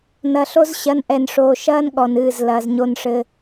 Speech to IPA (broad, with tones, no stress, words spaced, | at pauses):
nɐ˨ɬo˦z ɕɐ˨˦nʔɛ˨nʂoː˨ʃɐː˦n ɠɔ˨nɨː˦˨z lɐː˨zɲo˦˨nʂɘ˦